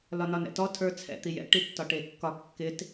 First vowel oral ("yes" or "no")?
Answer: yes